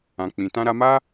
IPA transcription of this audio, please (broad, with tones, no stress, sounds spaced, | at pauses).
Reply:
ã˨ k͡p ĩ˨ t ã˧ ɾ a˧ m a˦